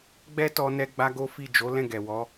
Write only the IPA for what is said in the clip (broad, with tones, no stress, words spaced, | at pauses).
ɡ͡bɛ˦ tɔ˧ nɛ˦ɡ͡ba˦ɡo˦fi˦˨ d͡ʒo˨˦ lɛ̃˦˨ɡɛ˨wɔ˨˦